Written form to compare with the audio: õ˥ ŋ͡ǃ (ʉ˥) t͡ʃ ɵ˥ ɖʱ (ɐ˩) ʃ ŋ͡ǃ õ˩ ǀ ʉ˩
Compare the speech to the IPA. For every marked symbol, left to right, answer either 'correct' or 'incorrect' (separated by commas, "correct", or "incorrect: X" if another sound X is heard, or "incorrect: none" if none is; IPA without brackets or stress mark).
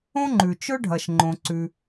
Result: incorrect: ʉ˩, correct